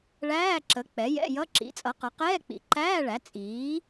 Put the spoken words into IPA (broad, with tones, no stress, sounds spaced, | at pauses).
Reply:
ɭ æː˧˥˧ ǁ ə˩˥ k͡p ɛ˩˥ j ɛ̰˧˥˧ j ʌ˧˥˧ ǁ ḭ˩˥ t͡sʼ ʌ˩˥ q ʌ˩˥ q ɛː˧˥˧ k͡p ḭ˩˥ ǃ æː˧˥˧ ɭ æ˩˥ t͡sʼ iː˩˥